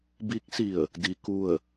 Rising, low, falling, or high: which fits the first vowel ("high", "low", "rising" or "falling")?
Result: rising